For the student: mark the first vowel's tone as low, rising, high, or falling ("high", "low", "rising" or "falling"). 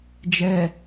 low